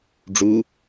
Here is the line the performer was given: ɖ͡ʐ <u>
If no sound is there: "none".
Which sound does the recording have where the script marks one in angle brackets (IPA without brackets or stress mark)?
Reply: u